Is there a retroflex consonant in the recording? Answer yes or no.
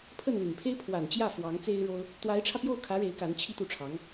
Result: yes